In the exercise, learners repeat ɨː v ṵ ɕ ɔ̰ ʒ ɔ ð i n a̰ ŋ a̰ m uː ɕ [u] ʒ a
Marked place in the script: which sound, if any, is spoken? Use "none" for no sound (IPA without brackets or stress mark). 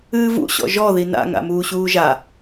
uː